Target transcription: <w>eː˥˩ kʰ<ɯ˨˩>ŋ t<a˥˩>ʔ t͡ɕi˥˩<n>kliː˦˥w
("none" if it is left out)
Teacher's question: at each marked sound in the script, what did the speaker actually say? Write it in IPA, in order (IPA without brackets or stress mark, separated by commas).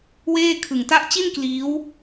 w, ɯ˨˩, a˥˩, n